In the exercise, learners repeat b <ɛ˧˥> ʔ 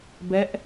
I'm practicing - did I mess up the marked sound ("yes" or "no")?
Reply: no